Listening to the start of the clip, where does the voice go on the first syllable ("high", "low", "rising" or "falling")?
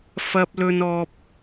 high